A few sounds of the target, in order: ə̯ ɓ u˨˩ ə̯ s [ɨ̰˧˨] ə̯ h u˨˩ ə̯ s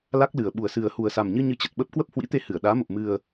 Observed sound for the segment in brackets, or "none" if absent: ɨ˨˩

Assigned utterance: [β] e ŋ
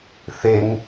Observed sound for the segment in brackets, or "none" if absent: θ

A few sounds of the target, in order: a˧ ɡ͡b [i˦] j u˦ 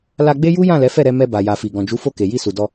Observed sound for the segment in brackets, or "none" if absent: e˦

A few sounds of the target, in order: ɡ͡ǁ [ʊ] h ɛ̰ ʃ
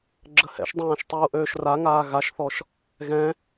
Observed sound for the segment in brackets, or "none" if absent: ə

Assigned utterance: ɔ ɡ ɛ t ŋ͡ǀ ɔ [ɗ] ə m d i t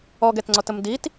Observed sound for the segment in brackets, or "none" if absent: t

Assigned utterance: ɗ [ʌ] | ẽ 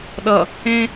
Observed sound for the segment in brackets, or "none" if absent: ʌ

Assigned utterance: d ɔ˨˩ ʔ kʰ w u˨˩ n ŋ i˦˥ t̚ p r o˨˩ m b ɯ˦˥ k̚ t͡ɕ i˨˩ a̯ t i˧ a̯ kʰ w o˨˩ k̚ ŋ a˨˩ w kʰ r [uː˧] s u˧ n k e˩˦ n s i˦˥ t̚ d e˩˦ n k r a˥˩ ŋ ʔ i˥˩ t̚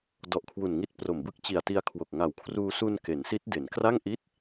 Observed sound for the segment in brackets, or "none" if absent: uː˧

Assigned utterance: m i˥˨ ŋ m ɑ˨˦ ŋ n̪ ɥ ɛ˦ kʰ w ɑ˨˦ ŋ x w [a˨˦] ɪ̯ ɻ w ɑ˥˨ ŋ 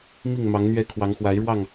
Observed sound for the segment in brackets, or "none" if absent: a˨˦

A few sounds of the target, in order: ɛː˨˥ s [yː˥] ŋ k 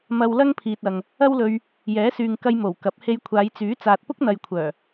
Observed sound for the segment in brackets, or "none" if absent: yː˨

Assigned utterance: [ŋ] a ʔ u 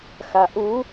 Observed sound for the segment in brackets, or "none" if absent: x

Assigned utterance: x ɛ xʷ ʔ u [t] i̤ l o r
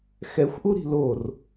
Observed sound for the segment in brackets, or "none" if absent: ɾ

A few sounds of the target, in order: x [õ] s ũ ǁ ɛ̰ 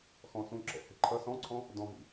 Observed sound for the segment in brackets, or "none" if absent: ɔ̃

